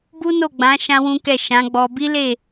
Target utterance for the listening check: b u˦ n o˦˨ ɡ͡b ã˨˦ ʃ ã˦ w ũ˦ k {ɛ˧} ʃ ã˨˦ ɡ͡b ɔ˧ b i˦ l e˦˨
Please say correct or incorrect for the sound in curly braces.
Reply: incorrect